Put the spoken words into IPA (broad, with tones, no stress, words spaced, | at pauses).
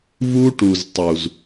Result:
vu˦ʈu˨z tˤu˨z